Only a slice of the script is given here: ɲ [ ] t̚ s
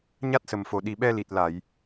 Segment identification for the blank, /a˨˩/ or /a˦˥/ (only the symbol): a˦˥